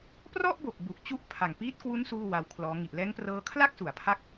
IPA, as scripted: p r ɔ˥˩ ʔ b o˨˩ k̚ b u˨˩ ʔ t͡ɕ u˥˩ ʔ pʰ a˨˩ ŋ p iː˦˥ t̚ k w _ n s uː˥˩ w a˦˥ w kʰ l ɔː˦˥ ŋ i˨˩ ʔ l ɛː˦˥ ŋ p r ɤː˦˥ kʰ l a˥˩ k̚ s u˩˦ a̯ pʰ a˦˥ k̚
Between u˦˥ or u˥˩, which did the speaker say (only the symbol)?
u˦˥